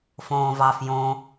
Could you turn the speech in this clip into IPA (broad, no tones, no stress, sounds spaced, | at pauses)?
f õː v ɑ f j õ